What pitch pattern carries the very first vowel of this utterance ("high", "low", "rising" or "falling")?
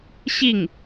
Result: falling